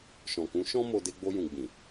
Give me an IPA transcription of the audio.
ʃ ɔ̃˨ k ũ˨˦ ʃ ɔ̃˦ m o˧ d e˧ ɡ͡b o˧ j ũ˨ ɡ͡b ĩ˨

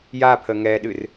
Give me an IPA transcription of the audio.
j a pʰ ə ŋ ɛ ɗ ɨ r

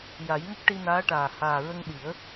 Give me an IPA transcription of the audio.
j a˨˩˦ j ŋ ə˦˥ k̚ ʈ i˧ n aː˧˥ ʈ aː˨˩ h aː˨˩ ɹ ə˧ ŋ ɗ i˨˩˦ ə̯

